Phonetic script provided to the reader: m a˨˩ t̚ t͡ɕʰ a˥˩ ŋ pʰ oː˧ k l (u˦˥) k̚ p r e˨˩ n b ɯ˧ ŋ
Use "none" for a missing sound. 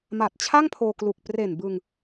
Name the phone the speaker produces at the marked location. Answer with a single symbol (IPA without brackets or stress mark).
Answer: u˨˩